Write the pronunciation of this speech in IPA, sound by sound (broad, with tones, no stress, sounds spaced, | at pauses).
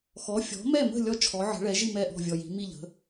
x ɔ˩˥ fʲ ɔ̤˩˥ m ɛ˥˩ m ə̤˥˩ lʲ ɔ˦ t͡ʃʰ ɔ˩˥ ʕ ə̤˩˥ ɭ ɛ˩˥ ʒ i˥˩ m ɛ˥˩ ʔ ɔ̤˥˩ vʲ ɔ˨ j i̤˩˥ m i˥˩ ʎ ə̤˩˥